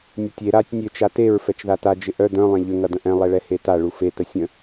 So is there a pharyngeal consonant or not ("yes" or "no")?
no